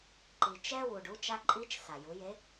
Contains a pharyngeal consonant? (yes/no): no